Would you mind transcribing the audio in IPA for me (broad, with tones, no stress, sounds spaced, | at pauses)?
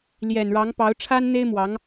l j ɛ˨˩ n ɻ ɑ˧˥ ŋ p ɑ˧˥ ʊ̯ ʈ͡ʂʰ a˥ n n̪ e˥ ɪ̯ m w ɑ˧˥ ŋ